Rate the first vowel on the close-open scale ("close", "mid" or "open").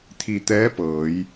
close